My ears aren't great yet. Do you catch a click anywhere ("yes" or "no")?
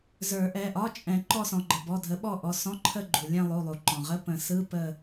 yes